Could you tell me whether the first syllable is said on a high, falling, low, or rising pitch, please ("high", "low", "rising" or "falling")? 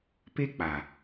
high